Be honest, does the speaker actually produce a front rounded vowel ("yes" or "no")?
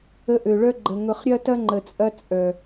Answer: yes